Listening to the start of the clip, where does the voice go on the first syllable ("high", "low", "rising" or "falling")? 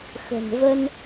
low